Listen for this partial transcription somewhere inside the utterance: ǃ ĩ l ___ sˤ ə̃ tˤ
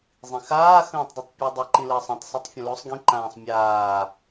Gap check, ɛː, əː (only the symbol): əː